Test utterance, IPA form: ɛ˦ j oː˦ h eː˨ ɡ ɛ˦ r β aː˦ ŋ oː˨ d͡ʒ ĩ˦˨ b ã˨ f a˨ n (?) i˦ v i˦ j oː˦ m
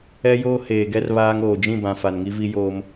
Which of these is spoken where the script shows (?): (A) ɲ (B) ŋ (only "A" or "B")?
B